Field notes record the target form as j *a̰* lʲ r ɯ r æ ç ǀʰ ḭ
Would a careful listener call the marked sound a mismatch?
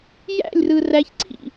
yes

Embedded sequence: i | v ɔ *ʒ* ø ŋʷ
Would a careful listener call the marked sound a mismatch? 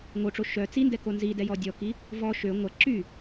yes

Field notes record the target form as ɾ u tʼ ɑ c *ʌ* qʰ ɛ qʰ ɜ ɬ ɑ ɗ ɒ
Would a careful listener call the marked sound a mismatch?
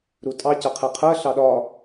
no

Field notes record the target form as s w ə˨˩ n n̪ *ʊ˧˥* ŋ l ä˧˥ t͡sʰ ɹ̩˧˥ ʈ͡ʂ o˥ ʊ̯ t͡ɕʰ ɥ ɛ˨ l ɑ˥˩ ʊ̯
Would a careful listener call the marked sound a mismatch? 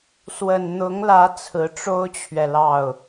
no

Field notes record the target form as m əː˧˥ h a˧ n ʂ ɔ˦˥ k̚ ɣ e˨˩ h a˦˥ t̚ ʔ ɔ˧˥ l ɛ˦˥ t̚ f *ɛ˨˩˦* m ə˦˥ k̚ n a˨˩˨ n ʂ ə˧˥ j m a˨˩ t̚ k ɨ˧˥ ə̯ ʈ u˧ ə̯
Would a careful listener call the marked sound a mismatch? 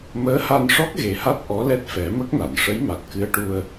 no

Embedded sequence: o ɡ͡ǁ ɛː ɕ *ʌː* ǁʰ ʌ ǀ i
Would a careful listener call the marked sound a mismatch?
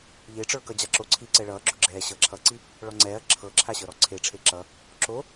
no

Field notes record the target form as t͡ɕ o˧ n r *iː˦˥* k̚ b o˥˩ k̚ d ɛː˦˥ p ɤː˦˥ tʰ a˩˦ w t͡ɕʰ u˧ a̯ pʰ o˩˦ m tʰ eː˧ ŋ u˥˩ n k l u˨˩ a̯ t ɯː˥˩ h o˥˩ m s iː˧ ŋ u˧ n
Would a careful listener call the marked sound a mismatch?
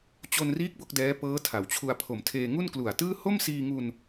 no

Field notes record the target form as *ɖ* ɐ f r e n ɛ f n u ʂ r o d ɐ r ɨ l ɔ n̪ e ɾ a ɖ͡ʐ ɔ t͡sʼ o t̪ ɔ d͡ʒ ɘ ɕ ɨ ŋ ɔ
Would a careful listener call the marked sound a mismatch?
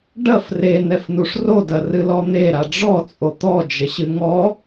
no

